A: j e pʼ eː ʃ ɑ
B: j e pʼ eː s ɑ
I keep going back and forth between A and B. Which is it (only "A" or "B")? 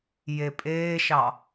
A